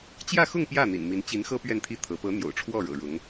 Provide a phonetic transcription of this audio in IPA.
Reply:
t͡ɕ j ä˥˧ x ʊ˥˧ ŋ p j ä˥˩ n̪ ḭ˨˩ n m i˧˥ n t͡ɕ i˧˥ n x ɤ˥ p ɥ ɛ˥˧ n t̪ʰ i˥˩ t̪ʰ ɤ˧˥ p ɤ˧˥ n̪ j o̰˨˩ ʊ̯ ʈ͡ʂʰ w ɔ˥˩ ɻ ɤ̰˨˩ ɻ ʊ˧˥ ŋ

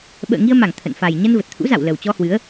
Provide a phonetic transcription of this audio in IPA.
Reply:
ɓ ə̰ː˧˨ ŋ i˧ ə̯ m a˧˩ ŋ t̪ʰ ə̰˧˨ n f a˨˩ j ɲ ə˧ n v ə˨˩ t̚ t̪ʰ ṵ˧˥ z a̰˧˨ w l ə˨˩ w t͡ɕ ɔ˧ h w ɨ˨˦ ə̯

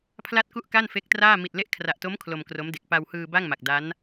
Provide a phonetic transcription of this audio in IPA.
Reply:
pʰ l a˥˩ t̚ k u˥˩ ʔ k a˥˩ n f e˦˥ k̚ t r aː˥˩ m i˨˩ t̚ l e˦˥ ʔ kʰ r a˨˩ ʔ t o˦˥ m kʰ l o˧ m k r o˦˥ m d e˨˩ k̚ p a˧ w h ɯː˧ b a˥˩ ŋ m a˨˩ k̚ d a˦˥ n

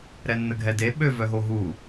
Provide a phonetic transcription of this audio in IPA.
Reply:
ɾ ɛ nː ə ɡʱ ɛ d e ɓ ø v œ ɦ o ɦ u

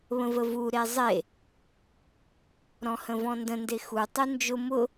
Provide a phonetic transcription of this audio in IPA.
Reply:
β ə̃ v ə v u ɾ e zˤ e | ɾ ɔ̃ h ə̃ v ɔ̃ n d ə̃ n d e x u tˤ u n d͡ʒ ʊ m ʊ

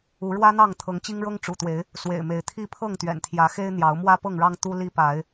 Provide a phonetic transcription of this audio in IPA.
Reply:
u˨˦ ɻ w ä˦ n̪ ɑ˥˨ ŋ t̪ʰ ɤ˨˦ ŋ t͡ɕ i˦ ŋ ɻ ɤ˦ ŋ ʈ͡ʂ ṵ˨˩ t̪ w e˨˦ ɪ̯ | s w ḛ˨˩ ɪ̯ m e˨˦ ɪ̯ t̪ʰ i˥˨ pʰ ɤ˥˨ ŋ t̪ ɥ ɛ̰˨˩ n t̪ʰ j ä˨˦ x e˦ ɪ̯ n̪ j ɑ˨˦ ʊ̯ m w ä˦ p ɤ˥˨ ŋ ɻ ɑ˦ ŋ t̪ u˦ l i˦ p a˨˦ ɪ̯

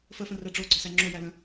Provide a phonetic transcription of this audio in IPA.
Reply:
f ə f ə̃ r ɛ ɖ͡ʐ o ɡ͡ǀ ɔ s æ ŋ͡ǁ o j æ l ə̃

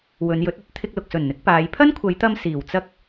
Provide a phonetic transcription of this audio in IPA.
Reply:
w ɵ˨˧ n j ɵ˨˥ t̚ ɵ˨˥ t̚ t̪ʰ ɪ˧ k̚ l ʊ˨ k̚ s ɵ˨˩ n n̪ ɪ˨˥ k̚ p aː˨˧ j pʰ ɐ˥ n kʷʰ ɐ˨˧ j t̪ ɐ˧ m s iː˨˩ w t͡s ɐ˥ k̚

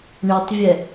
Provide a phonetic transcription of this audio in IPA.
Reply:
ɳ e tˤ vʲ ɛ

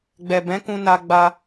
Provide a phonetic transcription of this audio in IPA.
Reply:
ɡ͡b ɛ˨ b ɛ̃˨˦ k ũ˧ n a˧ ɡ͡b a˧

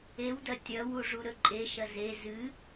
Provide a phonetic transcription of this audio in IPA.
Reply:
e w d ɐ tʲ ɐ w u ʐ u ɾ ɵ ǃʼ e ʃ ɐ z e z ɨ

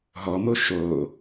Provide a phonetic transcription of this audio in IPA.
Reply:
ɦ ɔ m o ʃ o

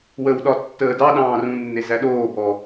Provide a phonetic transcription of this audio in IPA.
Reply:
w ə w ɗ ɒ tː əː d ɑ ɗ ɑ̃ː r ũ nː e z æ ɗ oː b ɔ

